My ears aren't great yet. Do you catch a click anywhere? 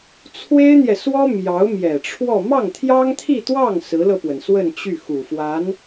no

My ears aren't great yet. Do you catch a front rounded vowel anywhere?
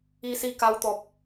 no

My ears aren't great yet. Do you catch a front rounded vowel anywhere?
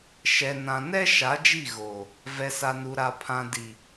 no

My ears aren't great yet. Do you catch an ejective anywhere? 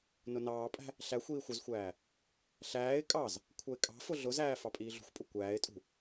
yes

